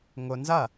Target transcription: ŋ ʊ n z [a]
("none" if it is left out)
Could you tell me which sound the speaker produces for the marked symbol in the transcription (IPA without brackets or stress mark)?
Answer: ɐ